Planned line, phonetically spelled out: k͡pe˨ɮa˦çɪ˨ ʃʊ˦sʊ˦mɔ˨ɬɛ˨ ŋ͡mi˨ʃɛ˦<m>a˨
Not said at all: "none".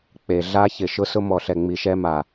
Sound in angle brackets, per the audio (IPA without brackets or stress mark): m